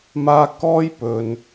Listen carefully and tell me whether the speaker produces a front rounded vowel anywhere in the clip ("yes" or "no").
no